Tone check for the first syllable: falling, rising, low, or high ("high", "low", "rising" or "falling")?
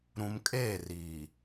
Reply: low